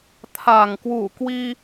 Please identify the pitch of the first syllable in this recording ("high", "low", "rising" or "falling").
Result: low